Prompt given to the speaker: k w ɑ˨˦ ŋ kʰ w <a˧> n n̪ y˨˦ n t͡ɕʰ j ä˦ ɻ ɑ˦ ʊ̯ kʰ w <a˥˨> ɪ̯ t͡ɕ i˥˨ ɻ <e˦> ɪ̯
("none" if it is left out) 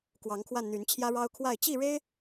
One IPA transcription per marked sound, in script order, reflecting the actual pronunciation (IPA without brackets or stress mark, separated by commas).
a˧, a˥˨, e˦